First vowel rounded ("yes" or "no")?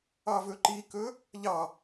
no